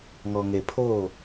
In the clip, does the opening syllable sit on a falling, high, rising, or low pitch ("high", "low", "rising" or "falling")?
low